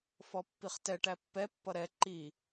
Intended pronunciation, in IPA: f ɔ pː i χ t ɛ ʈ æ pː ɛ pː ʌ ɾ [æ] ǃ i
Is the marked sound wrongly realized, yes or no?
yes